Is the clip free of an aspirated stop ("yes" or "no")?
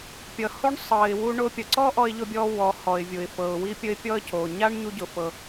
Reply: yes